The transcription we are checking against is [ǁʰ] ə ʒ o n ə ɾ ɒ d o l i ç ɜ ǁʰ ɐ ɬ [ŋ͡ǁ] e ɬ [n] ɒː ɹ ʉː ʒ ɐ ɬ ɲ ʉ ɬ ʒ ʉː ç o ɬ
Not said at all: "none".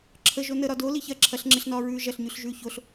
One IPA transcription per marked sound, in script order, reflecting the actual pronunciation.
ǁʰ, ŋ͡ǁ, n

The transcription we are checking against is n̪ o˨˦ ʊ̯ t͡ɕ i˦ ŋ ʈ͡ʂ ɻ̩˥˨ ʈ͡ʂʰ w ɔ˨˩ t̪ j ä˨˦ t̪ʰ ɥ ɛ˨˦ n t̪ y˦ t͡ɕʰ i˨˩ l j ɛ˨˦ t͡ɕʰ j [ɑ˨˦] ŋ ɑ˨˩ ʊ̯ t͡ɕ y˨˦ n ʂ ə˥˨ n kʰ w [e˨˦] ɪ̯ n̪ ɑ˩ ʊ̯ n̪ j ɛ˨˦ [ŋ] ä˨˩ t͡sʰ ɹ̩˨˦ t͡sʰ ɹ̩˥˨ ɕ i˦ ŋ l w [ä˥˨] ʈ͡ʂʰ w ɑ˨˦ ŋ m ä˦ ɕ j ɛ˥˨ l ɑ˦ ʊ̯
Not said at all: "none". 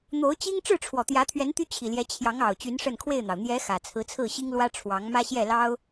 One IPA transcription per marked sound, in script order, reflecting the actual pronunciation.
ɑ˨˦, e˥˨, x, ä˦

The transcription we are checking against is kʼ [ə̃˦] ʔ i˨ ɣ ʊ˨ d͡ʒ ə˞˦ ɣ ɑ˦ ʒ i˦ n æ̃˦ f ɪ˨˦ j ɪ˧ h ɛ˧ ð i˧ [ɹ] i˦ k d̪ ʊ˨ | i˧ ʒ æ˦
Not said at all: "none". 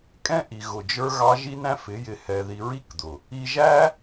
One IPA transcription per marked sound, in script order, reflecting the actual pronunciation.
ɛ̃˦, ɹ

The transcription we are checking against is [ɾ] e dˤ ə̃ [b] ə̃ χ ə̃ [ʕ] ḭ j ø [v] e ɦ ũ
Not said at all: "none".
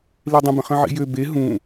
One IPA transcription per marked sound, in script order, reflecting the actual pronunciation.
l, b, ʕ, b

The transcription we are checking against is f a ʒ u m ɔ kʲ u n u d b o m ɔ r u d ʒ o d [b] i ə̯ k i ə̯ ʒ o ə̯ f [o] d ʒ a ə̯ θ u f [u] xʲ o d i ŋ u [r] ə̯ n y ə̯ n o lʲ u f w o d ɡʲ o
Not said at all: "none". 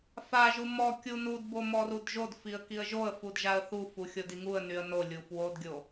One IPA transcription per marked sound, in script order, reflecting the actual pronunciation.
f, u, u, none

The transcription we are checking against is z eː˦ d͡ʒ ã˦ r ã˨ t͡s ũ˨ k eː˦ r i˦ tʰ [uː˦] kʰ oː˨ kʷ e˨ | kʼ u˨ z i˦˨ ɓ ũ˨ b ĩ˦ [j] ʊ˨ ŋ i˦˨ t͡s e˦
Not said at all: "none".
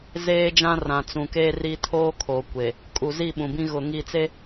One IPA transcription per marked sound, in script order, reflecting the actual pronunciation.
oː˦, ɣ

